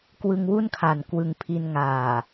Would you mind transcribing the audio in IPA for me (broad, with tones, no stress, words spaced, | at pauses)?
kwɯ˧ŋwu˥˩nkʰa˨˩n kwɯ˧ŋpʰi˧n ŋaː˨˩